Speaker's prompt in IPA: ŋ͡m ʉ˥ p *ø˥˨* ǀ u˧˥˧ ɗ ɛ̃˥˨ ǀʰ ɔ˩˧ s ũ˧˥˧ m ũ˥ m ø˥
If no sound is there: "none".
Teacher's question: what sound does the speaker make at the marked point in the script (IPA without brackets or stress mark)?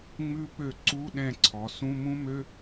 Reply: ø˥˨